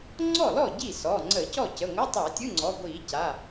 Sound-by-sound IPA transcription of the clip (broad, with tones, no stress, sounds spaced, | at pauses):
ŋ͡ǀ ɔ˥˩ l ɔ˥˩ ɟ i˥˩ s ɔ˩˧˩ ŋ͡ǀ ə˧˩˧ c ɔ˥˩ c ə˩˧˩ ŋʷ ə˧˥˧ tˤ a˧˩˧ tʲ ɯ˧˥˧ ŋ͡ǀ ɔ˩˧˩ ɡʷ i˧˩˧ c a˩˧˩